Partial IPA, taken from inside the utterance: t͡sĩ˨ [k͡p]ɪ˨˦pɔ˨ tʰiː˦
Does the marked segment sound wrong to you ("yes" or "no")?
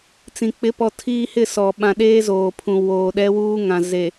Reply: no